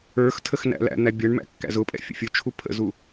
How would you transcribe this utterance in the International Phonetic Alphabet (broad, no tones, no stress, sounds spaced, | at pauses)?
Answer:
ə˞ x tʰ ə x n æ̰ l æ̰ n̪ æ bʲ ʌ ɳ m æ̰ kː æ̰ z ʊ pʼ ɛ̰ fʲ ə̰ fʲ ʊ t͡ʃʰ u pʰ ə̰ z u